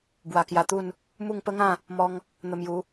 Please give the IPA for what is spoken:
b w a˧ k j a˧ t̪ u˥˧ n | m u˥˧ ŋ p ə˦ ŋ ã˥˧ | m ɔ˧ ŋ | n̪ ə˧ m j u˨˦

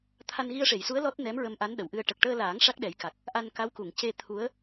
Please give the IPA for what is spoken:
t̪ʰ a˧ n ɣ i˧ ə̯ ʂ e˨˩˨ j s u˧˥ ə̯ l ɔ˦˥ t̚ n ɛ˧˥ m ɹ ə˧ m ʔ a˧˥ n ɗ ə˨˩ w ʔ ɨ˧ ə̯ ʈ ə˨˩ k̚ ʈ əː˧ l aː˨˩˦ ŋ ʂ a˦˥ k̚ ɗ ɛ˨˩˦ j k a˨˩ k̚ | ʔ a˧ n k a˧˥ w k u˨˩˨ ŋ c e˧ t̪ʰ u˧˥ ə̯

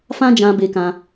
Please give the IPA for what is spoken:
f ã˦ d͡ʒ ã˧ b e˧ k ã˧

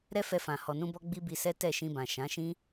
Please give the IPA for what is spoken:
ɾ ɛ˦ f ɛ˧ f ã˨ h ɔ˨ n ũ˧ b ɔ˧ ɡ͡b i˦ b i˧ s ɛ˦ t ɛ˦˨ ʃ ĩ˧ b ã˨ ʃ ã˨˦ ʃ ĩ˦

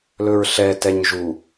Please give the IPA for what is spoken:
l ɵ ɹ ɬ ɛ t ɛ ɲ ʒ u

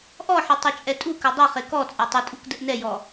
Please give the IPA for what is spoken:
ʔ ɔ ħ ɘ tˤ ɘ t͡ʃʼ ɛ tʼ u k ɘ dˤ u χ e k ɔ t͡sʼ a tˤ ɘ tʼ u k d ɘ ʔ n ɛ j ɔ

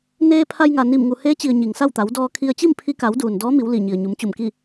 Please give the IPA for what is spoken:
n eː˧ pʰ a˧ j ŋ a˩ n i˧˩ m ŋ u˩ h eː˧˥ t͡ɕ i˩ ə̯ ɲ i˩ ŋ s a˥˨ w t̪ a˩˧ w d ɔː˧ kʰ i˧ ə̯ t͡ɕ i˥˨ m pʰ i˧ k a˩˧ w d uː˩ n d ɔː˧˥ m i˩˧ w l i˧˩ ɲ i˩ ə̯ ɲ u˩˧ m t͡ɕ u˧˩ m k i˥˨

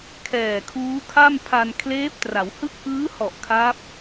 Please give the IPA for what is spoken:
kʰ ɛː˨˩ kʰ uː˦˥ kʰ a˥˩ m pʰ a˧ n kʰ l eː˦˥ p̚ t r a˩˦ w h ɯ˦˥ k̚ ʔ ɯː˦˥ h ɔ˨˩ ʔ kʰ a˦˥ p̚

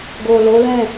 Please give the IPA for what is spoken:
ɡ o˨ l o˨˦ l ɛ̃˦˨

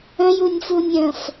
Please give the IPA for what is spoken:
ə̃ j u nʲ f u nʲ ə̃ f

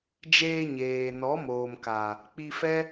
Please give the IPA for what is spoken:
d͡ʒ eː˧ ɲ eː˨ n ɔ˨˦ m oː˨ m k a˨ | k͡p i˧ f ɛ˦

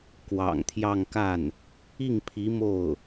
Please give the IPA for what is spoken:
k w ɑ̰˨˩ ŋ t̪ʰ j ɑ˥˧ ŋ k a˥˩ n | i˥˩ ŋ pʰ i˧˥ m o˥˩ ʊ̯

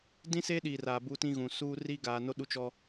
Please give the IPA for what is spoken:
d ĩ˦ s e˦ ɗ iː˨ r aː˨ b u˦ t ĩ˦ ɣ ũ˨ s uː˦ r i˦ ɡ aː˨ n o˦ ɗ u˦ t͡ʃ ɔ˦

